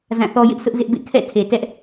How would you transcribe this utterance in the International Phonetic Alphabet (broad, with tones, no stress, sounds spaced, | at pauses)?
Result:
z ã˦˨ θ ɔ˦ j ɪ˦ ʔ sʰ ʊ˦ ʔ z ɪ˦ ʔ b ḛ˦˨ kʰ ɛ̰˦˨ tʰ e˨ t ɛ˦ ʔ